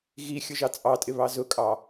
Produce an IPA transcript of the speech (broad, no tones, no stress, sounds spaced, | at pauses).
ɣ i xʲ ʊ ʒ ɑ t͡sʼ ɑ tʼ ɪ β ɑ z ʊ kʼ ɑ